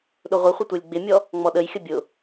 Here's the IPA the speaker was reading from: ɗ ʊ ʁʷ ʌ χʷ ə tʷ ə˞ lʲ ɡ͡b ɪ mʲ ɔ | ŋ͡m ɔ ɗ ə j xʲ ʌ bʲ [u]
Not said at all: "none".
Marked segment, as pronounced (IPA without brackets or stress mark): ʊ